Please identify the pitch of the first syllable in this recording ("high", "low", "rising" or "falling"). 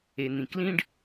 low